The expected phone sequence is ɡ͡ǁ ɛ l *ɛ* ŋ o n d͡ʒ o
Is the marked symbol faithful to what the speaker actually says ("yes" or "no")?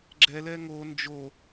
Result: yes